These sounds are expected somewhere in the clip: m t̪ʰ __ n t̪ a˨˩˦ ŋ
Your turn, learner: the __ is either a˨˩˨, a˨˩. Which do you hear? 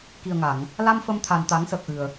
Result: a˨˩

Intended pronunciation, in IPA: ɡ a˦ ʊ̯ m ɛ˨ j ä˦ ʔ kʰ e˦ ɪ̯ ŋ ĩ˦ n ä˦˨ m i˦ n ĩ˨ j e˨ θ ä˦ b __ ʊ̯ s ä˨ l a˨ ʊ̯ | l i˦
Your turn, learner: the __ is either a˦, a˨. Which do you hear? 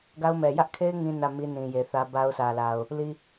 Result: a˦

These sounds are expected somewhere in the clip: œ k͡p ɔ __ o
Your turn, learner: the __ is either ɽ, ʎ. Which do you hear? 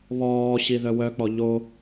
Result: ʎ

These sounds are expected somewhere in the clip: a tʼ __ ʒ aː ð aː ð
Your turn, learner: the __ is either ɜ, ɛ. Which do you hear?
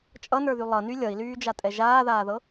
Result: ɛ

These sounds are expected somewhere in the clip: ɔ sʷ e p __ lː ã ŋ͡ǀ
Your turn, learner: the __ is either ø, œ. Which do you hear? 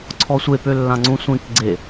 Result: ø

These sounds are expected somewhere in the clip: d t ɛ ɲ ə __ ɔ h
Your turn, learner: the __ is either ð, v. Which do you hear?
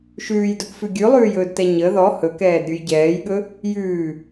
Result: ð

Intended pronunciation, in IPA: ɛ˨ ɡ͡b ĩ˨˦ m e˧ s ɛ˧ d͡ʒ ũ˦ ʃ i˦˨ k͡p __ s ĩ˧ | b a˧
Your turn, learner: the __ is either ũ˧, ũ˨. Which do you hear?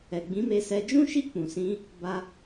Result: ũ˨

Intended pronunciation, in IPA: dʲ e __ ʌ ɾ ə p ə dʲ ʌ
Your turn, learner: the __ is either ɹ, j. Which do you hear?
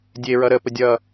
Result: ɹ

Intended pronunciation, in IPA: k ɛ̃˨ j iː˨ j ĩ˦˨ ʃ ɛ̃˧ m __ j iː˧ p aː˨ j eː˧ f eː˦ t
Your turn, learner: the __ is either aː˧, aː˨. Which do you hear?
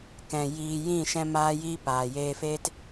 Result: aː˧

